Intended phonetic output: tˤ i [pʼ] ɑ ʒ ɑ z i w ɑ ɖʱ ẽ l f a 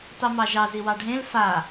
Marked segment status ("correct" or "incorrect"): incorrect